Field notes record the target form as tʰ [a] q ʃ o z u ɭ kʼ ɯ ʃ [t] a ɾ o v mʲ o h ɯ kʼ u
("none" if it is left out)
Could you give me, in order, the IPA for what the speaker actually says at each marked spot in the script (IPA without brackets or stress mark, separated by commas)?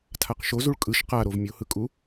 a, q